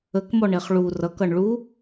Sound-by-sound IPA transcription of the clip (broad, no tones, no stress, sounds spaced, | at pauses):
ə k m ɔ ɳ e χ ɭ u r ʌ k ʌ ɳ ɭ u